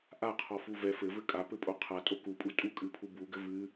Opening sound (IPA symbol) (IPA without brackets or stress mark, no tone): ʔ